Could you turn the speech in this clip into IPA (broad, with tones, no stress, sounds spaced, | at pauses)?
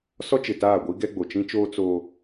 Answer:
s ɔ˦ t͡ʃ ɪ˨ t aː˦˨ ɡʷ i˦ ɡ ɛ˦ ɡ͡b o˨ t͡ʃ ĩ˦ t͡ʃ oː˦ t͡s oː˦